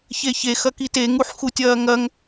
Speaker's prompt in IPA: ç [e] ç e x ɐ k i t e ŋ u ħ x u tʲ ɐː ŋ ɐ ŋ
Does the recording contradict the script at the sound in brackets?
no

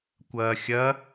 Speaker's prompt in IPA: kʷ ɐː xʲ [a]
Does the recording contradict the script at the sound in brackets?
yes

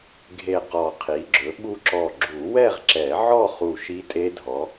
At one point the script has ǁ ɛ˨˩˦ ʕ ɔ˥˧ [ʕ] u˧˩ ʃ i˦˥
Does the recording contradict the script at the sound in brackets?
yes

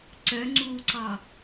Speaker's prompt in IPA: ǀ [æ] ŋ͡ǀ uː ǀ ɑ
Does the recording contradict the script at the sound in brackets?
yes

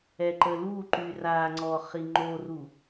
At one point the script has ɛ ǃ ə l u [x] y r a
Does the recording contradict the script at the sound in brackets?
yes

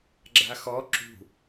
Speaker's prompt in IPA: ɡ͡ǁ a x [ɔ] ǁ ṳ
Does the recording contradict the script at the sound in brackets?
no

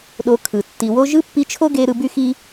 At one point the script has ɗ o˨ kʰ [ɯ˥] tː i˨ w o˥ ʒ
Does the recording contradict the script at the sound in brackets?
yes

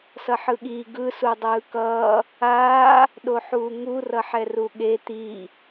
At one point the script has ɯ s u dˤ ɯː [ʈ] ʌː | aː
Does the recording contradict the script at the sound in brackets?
yes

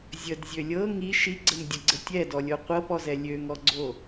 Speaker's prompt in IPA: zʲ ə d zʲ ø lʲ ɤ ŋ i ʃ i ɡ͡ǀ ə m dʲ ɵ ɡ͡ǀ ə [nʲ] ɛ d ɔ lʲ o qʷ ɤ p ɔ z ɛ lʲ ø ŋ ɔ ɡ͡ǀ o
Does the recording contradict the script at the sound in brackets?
yes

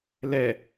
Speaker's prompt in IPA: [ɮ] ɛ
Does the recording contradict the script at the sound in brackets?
yes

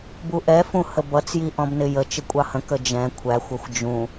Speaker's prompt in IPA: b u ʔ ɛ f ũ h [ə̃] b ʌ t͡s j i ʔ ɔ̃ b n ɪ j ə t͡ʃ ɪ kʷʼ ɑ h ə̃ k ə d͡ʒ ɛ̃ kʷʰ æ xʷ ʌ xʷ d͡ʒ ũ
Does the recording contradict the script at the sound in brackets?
yes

